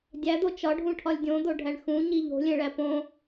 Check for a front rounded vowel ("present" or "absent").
absent